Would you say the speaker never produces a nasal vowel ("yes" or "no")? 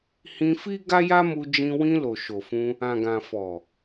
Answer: no